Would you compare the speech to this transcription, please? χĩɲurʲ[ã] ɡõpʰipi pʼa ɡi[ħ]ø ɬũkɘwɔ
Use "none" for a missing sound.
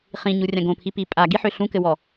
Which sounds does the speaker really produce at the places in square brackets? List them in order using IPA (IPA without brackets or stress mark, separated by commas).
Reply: ã, ħ